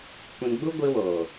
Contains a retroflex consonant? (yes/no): no